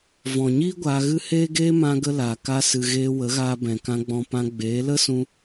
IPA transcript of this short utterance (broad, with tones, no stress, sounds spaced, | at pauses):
v ɔ̃˨ ɲ iː˦ ɡʷ aː˧ ɣ ɨ˦ h eː˦ ɡ eː˦ m ã˦ ɡ ə˦ l aː˨ k a˧ s ɨ˨ ɣ eː˧ w ə˨˦ ɣ aː˧ b ɛ̃˨ k ã˧ ɡ͡b ɔ̃˧ p ã˧ ɡ͡b eː˨˦ l ə˦ s ũ˧